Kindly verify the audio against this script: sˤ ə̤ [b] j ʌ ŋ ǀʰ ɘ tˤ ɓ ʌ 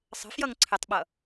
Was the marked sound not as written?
yes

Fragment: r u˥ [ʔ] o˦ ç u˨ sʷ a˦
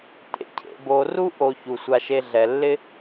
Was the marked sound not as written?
no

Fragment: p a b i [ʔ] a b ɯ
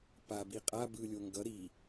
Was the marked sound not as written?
yes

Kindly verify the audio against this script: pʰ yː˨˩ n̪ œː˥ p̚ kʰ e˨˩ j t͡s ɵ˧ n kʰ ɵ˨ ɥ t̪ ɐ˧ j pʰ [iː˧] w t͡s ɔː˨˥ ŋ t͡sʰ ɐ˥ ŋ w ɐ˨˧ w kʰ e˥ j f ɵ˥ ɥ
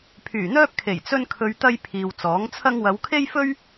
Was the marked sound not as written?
yes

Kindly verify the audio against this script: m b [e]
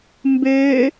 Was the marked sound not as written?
yes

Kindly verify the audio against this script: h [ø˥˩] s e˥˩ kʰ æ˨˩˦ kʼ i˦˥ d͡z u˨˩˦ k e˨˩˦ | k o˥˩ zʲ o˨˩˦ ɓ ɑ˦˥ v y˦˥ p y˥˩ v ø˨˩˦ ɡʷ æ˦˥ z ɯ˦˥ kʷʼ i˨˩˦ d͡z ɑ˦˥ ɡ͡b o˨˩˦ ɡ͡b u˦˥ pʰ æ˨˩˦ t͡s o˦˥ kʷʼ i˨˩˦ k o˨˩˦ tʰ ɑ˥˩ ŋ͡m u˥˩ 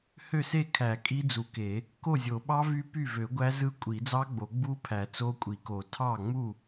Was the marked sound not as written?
no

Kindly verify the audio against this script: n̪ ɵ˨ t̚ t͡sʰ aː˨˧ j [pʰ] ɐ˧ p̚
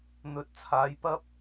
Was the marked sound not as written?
yes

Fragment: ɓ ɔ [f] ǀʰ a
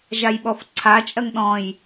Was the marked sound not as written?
no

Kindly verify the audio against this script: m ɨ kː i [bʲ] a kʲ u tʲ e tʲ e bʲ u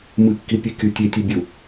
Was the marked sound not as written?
yes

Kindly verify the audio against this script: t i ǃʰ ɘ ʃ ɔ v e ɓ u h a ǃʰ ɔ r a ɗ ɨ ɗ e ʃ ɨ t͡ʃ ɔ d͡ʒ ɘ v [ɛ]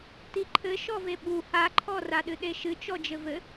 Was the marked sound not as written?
yes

